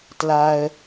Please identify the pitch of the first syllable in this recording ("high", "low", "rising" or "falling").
high